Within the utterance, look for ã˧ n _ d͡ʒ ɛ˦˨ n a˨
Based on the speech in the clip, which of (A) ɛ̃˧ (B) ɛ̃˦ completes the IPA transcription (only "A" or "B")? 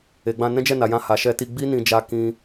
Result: B